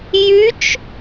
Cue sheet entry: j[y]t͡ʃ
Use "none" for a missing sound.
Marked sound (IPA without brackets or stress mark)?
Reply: y